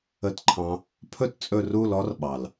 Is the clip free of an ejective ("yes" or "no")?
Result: no